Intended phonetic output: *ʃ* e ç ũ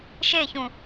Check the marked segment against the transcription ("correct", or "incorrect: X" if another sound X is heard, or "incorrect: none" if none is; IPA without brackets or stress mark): correct